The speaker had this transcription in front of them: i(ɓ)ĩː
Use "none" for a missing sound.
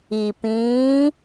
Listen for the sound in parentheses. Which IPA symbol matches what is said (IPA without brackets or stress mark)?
p